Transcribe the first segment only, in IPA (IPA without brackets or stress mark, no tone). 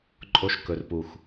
ǃʼ